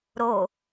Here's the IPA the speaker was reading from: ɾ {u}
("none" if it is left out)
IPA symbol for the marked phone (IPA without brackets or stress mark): o